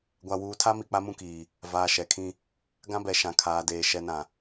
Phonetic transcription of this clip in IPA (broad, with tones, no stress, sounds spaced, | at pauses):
ɡʷ a˨ w uː˨ tʰ a˦ m i˨ k͡p a˦ m ũ˦ k iː˨ | v aː˨ ʃ ɛ˨ kʰ ĩ˦ | ɡ ã˦ b ɛ˨ ʃ ã˨ kʰ aː˨ d eː˨ ʃ ɛ˨ n ã˨